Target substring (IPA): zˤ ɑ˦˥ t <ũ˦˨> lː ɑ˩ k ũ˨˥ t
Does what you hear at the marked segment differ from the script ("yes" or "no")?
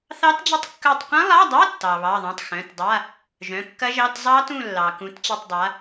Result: no